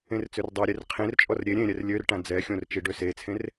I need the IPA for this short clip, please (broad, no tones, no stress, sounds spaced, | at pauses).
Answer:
ẽ r t͡s ø r dˤ a ɾʲ e r qʰ ẽ r t͡ʃʼ ɔ r ɾʲ e ɾʲ ẽ ɾʲ ɛ r lʲ ø r ʈ ã d͡z ɛ xʲ õ r t͡ʃ i ɖ ø s e t͡sʰ ẽ r